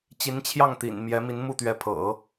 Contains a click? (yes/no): no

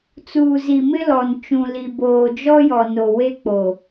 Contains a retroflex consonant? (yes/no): no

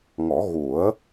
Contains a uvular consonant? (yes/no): no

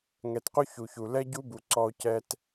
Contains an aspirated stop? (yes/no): no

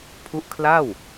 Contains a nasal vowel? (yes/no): no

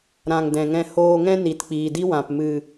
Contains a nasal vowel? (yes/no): yes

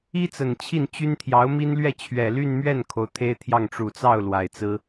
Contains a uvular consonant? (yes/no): no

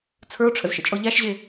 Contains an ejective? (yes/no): yes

